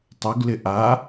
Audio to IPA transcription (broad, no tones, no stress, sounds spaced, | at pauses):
tˤ u ɡ l ɪ ʔ a